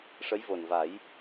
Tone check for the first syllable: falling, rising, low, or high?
rising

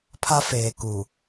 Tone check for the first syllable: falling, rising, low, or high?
high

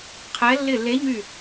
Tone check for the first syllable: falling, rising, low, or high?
rising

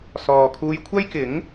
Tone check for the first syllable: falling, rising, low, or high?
low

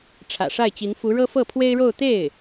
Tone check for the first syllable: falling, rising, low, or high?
low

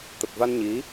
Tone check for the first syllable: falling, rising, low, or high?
low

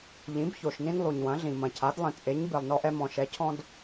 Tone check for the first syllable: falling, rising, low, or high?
rising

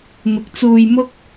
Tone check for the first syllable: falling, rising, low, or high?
low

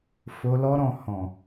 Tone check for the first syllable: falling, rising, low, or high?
low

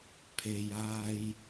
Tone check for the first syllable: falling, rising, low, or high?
low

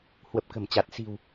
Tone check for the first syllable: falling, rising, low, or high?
low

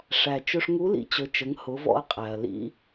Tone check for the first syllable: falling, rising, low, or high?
low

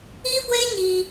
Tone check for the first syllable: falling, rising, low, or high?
high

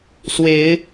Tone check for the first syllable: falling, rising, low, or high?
rising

